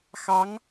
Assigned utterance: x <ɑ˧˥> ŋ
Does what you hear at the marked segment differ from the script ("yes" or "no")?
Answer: no